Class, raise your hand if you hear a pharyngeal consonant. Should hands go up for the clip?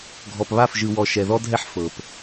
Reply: yes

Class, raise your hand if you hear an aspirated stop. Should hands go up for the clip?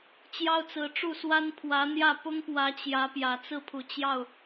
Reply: yes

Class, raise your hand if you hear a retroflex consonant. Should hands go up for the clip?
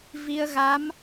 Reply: no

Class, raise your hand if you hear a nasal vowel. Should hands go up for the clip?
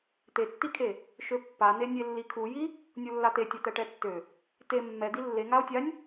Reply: no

